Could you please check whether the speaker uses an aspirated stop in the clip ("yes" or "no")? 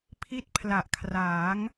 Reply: yes